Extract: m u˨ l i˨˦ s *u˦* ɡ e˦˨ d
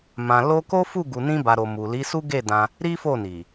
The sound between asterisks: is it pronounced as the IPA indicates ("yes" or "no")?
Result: yes